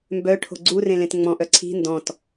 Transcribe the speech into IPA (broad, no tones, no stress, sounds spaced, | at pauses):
m b œ ʈʰ o̤ ɡ͡ǀ u r ẽ l ẽ t ŋ͡m ɔ̃ ʔ œ ǀʰ i̤ n d ɔ̃ t